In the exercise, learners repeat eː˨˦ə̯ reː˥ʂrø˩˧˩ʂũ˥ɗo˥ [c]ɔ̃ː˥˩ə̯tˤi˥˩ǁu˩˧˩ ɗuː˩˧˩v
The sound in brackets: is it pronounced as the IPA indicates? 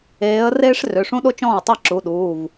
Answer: no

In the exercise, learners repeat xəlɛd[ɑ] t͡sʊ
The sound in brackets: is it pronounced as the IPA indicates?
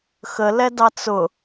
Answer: yes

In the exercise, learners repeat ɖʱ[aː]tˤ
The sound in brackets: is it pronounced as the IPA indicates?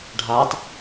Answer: yes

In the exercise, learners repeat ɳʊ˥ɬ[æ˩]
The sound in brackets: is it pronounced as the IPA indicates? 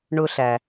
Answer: yes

